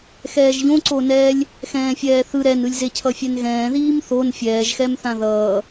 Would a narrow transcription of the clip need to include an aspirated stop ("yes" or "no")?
yes